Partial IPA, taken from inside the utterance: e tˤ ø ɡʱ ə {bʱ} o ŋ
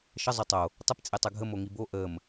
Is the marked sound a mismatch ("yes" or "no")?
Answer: yes